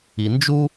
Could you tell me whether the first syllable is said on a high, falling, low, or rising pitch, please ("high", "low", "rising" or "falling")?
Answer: low